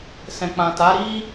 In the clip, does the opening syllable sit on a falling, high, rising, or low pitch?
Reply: low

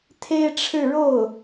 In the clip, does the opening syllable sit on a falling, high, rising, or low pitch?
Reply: high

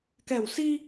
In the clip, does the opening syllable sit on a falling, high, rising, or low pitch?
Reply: low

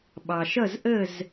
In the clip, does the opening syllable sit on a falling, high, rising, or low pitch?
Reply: low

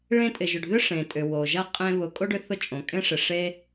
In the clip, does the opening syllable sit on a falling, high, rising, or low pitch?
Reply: high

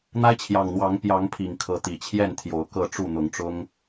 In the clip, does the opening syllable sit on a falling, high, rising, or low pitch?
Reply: high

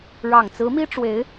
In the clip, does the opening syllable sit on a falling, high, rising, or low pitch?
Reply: low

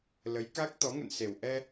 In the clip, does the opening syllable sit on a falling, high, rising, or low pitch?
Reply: rising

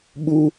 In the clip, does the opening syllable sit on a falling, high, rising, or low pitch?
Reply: high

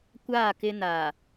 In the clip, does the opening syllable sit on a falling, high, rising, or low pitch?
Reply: falling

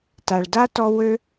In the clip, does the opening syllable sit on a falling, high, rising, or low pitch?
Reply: low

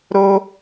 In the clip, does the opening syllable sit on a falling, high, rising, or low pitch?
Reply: high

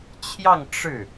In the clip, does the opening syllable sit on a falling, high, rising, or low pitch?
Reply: falling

